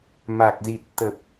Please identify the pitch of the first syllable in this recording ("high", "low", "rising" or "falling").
low